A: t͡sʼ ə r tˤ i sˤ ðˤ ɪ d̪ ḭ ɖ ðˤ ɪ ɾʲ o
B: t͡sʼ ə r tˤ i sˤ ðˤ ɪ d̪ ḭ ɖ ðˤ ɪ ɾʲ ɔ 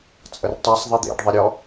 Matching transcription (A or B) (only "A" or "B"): B